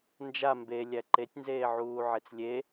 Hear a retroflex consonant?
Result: no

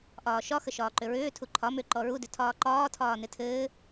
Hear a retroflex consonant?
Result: no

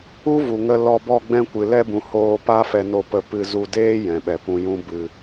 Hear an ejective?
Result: no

